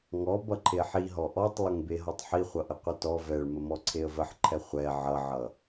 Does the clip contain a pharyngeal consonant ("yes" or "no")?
yes